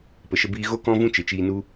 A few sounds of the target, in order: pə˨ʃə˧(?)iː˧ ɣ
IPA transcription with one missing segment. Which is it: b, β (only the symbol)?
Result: b